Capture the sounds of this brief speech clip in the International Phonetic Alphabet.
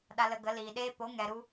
ɗa˧lə˧ɡə˨˦ liː˨ɗeː˦ po˨˦ŋɛ˨ɾu˧

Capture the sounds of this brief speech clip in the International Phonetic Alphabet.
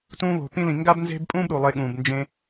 tũː˧βo̤˨pĩ˧lĩ˨ ŋɡa˦bnze̤˦bpʼũː˦b ɾu˨lˠe˧ɠũː˨b nd͡ʒẽ˧

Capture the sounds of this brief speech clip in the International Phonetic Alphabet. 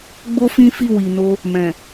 ɡ͡bo˦fĩ˦fi˦˨ wi˨no˧ | mɛ̃˨

